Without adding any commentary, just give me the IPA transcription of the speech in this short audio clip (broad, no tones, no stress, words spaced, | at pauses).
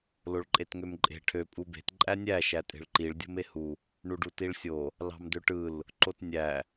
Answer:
loɭǃʼetŋømǃʼe̤ ʈʰø pʼube̤t ǃʼænʲæ ʃætʼe̤ɭǃiɭ dʲo̤mehu | ɳuɖutiɭsʲo | lɑ̤mdøʈɯl | ǃotnʲæ